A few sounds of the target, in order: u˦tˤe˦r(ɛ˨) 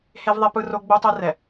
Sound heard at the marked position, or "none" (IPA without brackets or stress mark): ɛ˨